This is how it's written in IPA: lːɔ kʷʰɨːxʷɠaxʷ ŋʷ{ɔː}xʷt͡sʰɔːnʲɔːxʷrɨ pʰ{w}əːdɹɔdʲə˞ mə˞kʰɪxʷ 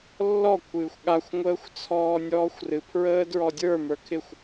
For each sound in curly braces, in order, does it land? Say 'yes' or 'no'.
no, no

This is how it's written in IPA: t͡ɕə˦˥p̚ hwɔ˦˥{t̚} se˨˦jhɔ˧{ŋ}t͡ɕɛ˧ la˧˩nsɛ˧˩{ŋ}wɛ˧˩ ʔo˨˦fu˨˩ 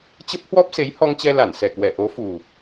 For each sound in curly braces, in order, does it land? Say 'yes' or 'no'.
no, yes, no

